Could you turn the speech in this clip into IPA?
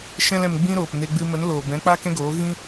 ʃ ɛ̃˦ l ɛ̃˧ m ɡ͡b ĩ˦ ɾ oː˨ p n e˧ ɡ͡b ɨ˧ m ə˨˦ n l oː˨ b ɛ̃˨˦ k͡p a˦ k ɛ̃˦ ɡ oː˨˦ ɣ ĩ˦

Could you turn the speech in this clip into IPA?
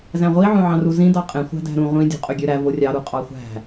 z æ̃ ʁʷ i ʕ õ ʕ ɑ̃ r u z ĩ d ɑ qʼ ẽ χʷ æ̤ d æ̤ ɾ ũ ʁʷ ĩ dʲ o̤ qʼ ø ɡʲ ø ɾ æ v o rʲ ɑ ɾ u qʼ ɑ χʷ æ̤

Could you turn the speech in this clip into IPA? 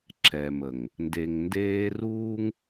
ǁ ɛ˨ m ə˨ ŋ | n d e˨ ŋ n d eː˦ r uː˦ ŋ

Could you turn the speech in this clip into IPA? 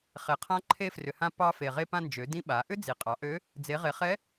χ e˩ qʰ ã˧˥ ǃʰ e˧ f r ʏ˩ h ã˧ p ɑ˧ f e˩ ʁ e˧ p ã˧ n d͡ʒ ø˩˧ d ĩ˧ ɓ a˩˧ ʔ ʏ˥ d͡z i˩ qʼ ɑ˩˧ ʔ ø˧˥ | d͡z e˩˧ ʁ e˩˧ χ ɛ˧˥

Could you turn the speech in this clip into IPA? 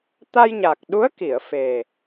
t̪ a˧ j ɲ a˨˩ k̚ ɗ u˧˥ ə̯ k i˨˩˨ ə̯ f e˨˩

